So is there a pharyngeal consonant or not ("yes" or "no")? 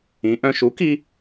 no